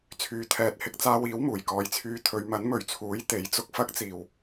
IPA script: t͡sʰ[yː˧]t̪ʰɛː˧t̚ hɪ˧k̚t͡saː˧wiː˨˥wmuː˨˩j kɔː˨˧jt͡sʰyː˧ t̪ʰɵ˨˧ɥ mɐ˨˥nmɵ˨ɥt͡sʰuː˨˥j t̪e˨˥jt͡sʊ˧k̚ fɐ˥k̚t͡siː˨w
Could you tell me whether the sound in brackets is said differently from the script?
no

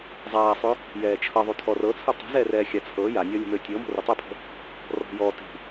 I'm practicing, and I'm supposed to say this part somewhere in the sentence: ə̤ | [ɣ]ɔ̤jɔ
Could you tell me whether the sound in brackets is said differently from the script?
yes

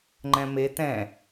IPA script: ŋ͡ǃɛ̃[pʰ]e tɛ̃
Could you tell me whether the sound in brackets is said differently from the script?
yes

